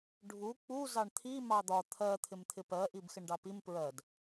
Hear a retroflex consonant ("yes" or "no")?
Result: yes